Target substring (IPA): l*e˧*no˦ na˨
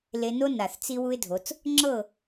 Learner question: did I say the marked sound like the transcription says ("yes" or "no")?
yes